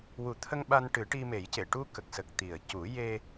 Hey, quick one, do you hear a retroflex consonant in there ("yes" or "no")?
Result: yes